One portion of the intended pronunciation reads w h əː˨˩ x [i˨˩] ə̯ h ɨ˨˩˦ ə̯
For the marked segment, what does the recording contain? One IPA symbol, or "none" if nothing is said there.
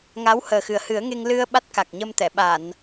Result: ɨ˨˩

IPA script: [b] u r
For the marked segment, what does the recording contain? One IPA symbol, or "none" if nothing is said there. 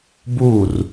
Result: b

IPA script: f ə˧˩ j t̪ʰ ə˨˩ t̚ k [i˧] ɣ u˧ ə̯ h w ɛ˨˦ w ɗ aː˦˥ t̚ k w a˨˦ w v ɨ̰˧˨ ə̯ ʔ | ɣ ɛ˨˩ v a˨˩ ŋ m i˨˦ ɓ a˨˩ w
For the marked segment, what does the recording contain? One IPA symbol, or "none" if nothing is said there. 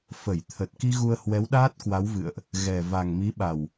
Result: i˧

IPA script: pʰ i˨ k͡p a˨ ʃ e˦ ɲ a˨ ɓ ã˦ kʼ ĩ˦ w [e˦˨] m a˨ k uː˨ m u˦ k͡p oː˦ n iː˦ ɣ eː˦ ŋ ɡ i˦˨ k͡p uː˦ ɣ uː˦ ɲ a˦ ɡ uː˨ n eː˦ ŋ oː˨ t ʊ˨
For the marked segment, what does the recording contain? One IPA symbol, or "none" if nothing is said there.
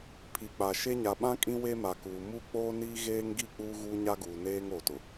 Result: e˦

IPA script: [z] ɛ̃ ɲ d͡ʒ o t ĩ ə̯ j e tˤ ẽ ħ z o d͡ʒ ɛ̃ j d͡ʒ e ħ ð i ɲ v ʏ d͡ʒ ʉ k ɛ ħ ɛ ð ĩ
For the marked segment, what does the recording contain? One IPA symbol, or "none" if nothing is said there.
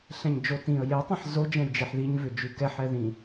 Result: ɬ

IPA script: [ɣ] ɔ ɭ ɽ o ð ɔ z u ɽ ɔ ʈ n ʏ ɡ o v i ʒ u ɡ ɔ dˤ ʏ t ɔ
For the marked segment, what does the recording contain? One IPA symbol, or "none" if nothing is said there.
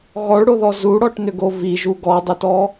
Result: ɣ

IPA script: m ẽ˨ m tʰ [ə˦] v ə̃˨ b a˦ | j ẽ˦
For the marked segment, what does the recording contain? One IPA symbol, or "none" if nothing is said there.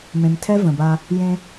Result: ɛ˦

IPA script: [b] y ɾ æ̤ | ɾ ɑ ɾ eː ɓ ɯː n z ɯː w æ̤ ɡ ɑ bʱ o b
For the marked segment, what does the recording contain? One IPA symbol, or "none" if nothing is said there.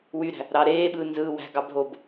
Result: w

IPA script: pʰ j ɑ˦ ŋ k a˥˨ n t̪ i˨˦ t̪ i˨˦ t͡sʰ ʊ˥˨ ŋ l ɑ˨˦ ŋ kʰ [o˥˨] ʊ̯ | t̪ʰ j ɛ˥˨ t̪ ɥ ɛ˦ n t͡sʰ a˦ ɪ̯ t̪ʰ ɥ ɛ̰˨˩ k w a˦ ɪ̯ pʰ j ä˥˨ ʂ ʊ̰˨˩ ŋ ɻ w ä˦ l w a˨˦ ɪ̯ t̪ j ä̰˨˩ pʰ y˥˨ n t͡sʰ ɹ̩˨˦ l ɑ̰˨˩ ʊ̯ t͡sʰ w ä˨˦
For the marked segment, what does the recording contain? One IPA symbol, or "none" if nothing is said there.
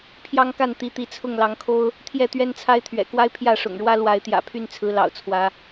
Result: o˦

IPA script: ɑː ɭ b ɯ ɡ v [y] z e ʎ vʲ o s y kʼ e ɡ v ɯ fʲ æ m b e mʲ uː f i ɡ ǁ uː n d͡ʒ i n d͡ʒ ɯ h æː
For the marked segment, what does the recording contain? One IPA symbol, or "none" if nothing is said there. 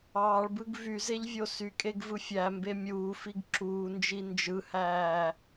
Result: y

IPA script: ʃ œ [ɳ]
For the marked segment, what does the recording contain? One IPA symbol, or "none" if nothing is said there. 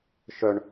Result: ɳ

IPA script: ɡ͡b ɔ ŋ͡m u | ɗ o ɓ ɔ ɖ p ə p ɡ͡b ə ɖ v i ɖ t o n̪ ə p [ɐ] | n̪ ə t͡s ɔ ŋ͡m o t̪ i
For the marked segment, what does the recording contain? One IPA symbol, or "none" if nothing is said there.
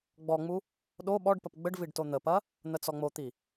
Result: ɐ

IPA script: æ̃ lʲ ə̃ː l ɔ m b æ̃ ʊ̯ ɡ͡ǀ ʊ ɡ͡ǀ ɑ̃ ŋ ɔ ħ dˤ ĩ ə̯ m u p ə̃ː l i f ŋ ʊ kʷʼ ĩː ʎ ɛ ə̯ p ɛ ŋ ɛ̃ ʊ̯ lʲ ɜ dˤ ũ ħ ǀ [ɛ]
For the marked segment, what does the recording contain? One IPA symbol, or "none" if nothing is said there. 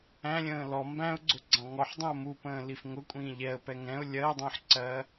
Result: ɜ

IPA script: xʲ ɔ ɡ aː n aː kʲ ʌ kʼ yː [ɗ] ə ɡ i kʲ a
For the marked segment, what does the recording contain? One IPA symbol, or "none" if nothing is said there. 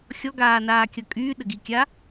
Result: ɗ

